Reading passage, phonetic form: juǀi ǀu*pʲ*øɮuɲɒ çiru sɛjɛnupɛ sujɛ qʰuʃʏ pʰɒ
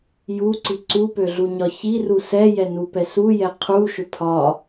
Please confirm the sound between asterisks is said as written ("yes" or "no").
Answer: no